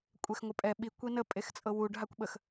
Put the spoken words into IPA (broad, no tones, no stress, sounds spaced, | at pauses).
kʷʼ e x ŋʷ ə pʼ ɛ ɓ i kʷ i n ə pʼ e x t͡sʼ ɤ w u ɖ ɦ a kʷ ɓ ə x